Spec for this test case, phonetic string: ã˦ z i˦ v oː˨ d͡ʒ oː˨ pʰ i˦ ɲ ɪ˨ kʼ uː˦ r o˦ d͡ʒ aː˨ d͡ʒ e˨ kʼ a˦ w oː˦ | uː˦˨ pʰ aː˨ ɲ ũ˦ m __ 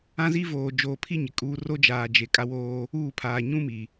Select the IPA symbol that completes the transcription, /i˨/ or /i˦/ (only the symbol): i˨